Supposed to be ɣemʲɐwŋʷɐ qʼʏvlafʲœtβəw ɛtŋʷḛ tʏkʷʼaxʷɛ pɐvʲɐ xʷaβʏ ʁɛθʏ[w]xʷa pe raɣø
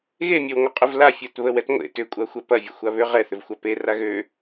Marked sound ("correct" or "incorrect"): incorrect